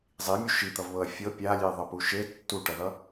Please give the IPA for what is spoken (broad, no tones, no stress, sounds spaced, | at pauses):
zˤ i mʲ u ʃ i t̪ ʌ v β ɤ ɐ̯ fʲ ɤ pʲ a lʲ e ðˤ ʌ p u ʃ e tː u ʈ ʌ ð ʌ